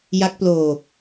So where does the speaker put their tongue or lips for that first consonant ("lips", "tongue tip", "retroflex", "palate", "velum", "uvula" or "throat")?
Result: palate